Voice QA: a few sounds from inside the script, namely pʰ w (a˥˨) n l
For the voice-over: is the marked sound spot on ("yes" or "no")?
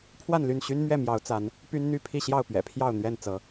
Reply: yes